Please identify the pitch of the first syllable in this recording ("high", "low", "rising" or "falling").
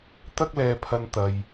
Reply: high